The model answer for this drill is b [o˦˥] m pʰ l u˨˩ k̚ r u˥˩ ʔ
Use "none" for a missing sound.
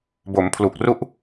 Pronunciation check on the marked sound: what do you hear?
o˩˦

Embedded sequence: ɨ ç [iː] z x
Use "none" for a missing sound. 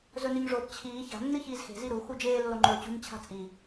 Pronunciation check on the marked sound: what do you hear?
iː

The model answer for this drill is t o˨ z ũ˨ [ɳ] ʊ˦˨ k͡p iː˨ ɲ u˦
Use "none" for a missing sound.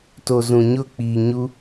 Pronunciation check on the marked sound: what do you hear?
ɲ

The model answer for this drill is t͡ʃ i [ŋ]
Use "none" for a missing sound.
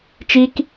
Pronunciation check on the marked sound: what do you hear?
k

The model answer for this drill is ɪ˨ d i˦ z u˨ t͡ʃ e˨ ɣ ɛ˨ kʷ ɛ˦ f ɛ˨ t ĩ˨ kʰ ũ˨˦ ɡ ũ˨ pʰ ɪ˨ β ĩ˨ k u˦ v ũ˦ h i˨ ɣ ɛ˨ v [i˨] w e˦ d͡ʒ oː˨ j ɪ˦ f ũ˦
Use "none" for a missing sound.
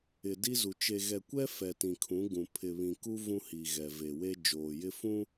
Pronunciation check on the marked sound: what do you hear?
e˨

